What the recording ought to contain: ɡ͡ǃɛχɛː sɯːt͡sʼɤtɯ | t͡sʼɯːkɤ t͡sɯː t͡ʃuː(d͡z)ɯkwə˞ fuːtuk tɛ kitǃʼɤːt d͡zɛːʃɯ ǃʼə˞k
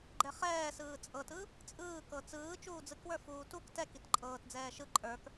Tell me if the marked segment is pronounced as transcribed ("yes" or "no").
yes